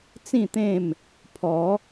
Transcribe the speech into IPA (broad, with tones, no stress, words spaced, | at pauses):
t͡sĩ˥˧t̪ẽ˥˧m | pʰɔ˨˦